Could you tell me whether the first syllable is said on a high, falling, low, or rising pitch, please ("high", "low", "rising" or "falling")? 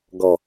low